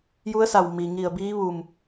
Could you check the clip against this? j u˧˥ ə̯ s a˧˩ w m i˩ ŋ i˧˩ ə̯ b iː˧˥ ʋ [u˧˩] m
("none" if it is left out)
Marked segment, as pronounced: u˧˩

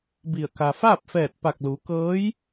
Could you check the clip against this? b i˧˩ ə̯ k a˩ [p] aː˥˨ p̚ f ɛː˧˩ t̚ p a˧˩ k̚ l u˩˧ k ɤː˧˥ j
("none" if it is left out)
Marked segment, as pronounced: f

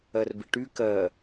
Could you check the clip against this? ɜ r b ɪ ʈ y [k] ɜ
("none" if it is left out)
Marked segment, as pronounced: k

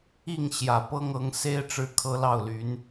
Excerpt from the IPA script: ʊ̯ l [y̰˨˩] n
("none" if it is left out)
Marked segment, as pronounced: y˧˥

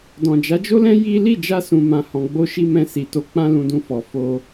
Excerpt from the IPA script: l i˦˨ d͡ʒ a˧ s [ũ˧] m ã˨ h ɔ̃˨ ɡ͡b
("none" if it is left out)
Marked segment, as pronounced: ũ˨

